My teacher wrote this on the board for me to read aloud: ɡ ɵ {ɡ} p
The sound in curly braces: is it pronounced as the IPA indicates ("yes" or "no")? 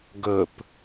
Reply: no